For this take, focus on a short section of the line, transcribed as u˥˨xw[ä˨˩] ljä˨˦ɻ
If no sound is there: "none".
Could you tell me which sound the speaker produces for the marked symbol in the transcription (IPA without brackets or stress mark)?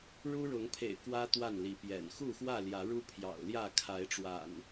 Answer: ä˥˨